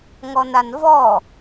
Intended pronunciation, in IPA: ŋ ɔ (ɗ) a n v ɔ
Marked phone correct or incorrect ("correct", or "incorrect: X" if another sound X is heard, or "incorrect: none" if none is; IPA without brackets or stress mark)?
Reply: incorrect: n